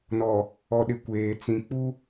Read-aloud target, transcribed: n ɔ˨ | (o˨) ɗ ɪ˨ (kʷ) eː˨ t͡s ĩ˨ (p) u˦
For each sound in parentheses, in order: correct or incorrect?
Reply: incorrect, correct, incorrect

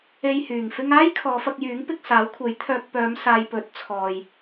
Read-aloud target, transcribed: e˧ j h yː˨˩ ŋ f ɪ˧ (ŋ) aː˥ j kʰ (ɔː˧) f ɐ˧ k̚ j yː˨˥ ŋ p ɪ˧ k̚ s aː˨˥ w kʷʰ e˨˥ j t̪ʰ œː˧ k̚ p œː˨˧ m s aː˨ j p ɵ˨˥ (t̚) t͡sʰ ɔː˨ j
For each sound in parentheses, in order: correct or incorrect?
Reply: correct, incorrect, correct

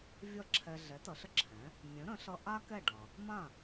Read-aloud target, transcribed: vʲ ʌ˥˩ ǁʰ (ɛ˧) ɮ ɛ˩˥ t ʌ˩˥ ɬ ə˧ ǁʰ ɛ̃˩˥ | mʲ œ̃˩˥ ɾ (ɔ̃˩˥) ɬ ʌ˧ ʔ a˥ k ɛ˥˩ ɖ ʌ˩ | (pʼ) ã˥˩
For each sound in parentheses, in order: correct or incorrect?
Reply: correct, incorrect, incorrect

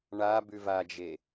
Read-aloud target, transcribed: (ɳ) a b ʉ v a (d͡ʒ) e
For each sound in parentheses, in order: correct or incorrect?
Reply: correct, correct

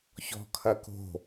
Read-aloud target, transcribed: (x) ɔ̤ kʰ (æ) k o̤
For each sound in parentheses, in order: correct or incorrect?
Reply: incorrect, incorrect

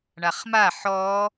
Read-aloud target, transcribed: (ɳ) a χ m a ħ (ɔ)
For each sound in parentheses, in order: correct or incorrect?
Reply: correct, correct

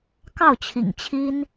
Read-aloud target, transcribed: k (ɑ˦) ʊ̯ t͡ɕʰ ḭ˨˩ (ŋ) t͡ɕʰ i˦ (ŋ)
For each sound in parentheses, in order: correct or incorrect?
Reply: incorrect, correct, incorrect

